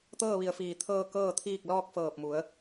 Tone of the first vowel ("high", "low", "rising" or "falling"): falling